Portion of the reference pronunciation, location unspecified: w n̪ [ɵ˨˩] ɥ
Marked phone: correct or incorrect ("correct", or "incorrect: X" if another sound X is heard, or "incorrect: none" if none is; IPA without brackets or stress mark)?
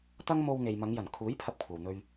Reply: incorrect: ɵ˧